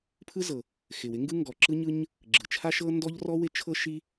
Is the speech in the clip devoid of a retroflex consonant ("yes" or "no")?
yes